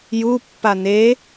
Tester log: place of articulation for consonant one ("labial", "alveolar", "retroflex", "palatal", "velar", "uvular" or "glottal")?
palatal